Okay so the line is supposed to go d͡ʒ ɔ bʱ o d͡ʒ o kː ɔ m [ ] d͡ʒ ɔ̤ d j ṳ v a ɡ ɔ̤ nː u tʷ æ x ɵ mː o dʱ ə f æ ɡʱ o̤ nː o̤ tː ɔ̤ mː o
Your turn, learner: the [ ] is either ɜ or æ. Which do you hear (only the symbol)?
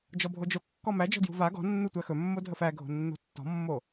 æ